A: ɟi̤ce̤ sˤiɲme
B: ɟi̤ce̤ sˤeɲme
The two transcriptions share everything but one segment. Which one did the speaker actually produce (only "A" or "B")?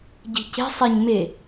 B